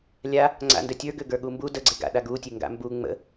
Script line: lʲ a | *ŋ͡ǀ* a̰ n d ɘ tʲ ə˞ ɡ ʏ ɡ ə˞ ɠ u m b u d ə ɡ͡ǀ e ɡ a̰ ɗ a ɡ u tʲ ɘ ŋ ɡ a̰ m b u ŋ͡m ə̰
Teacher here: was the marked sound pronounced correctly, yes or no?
yes